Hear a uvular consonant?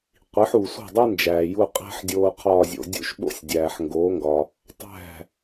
yes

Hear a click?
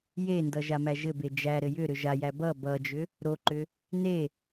yes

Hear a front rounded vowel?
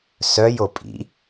yes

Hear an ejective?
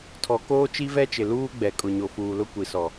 yes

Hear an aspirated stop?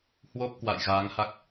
no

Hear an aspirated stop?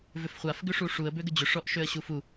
no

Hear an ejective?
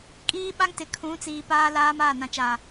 yes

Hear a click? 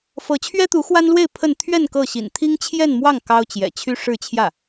no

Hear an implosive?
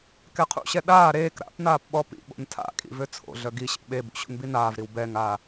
yes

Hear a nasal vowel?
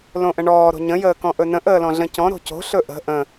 yes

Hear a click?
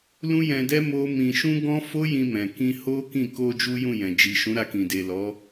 no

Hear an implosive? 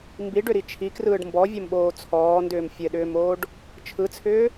yes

